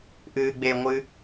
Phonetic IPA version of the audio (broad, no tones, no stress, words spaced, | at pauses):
ʔɨːɡ͡beŋʷɨ